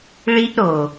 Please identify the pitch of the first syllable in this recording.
high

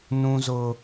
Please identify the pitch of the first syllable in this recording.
high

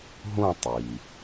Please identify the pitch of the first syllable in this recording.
falling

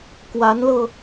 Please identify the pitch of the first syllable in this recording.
rising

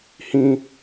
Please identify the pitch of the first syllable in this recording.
low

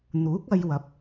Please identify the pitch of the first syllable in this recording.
rising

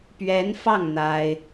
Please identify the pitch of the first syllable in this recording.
rising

